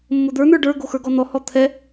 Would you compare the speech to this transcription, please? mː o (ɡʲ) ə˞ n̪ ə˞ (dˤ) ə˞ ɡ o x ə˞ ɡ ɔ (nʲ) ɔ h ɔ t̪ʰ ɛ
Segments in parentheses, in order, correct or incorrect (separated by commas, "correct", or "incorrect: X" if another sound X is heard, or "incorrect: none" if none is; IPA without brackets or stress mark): incorrect: d̪, incorrect: ɖ, incorrect: n̪